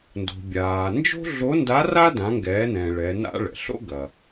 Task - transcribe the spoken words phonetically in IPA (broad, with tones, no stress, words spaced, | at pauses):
ndo̤˩bʲaː˩ nd͡ʒo̤˥ɮo˧˥nda˧˥ ra˥ dã˩˧ŋɡɛː˩˧nɛ̃ː˩ ɭɛ˩˧na̰˥ɭɛ̰˩ ɬo̰˥ ɡɐ˩